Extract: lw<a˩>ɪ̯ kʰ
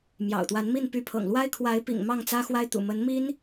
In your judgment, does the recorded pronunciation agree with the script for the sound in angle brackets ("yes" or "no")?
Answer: no